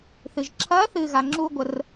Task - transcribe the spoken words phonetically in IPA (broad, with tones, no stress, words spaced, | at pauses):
θɨ˩ʒǁʰɐː˧˥ θɨː˧ɣa˩˧ŋ͡ǁuː˥ɡʷə˧r